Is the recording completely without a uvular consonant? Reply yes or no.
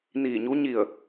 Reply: yes